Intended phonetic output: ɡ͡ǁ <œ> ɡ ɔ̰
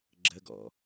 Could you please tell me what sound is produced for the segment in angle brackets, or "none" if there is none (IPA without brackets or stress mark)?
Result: ə